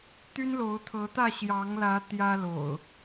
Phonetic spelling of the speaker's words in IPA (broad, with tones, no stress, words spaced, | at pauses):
t̪y˦nlo˨˦ʊ̯t̪ʰɤ˨˦t̪ä˥˨ ɕjɑ˨˦ŋlä˨˦ t̪jä˦lo̰˨˩ʊ̯